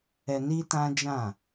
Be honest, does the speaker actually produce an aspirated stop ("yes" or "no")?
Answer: no